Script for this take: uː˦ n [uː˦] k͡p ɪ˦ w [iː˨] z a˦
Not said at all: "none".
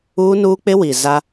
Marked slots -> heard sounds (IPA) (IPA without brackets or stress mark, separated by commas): uː˦, i˨